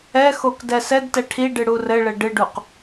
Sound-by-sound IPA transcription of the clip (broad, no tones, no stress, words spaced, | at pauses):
ɛxok dɛsɛdtɛ ʈʰiɖɨ ɽurɘɭɘ ɖɨɖuq